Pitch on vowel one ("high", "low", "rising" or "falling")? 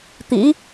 rising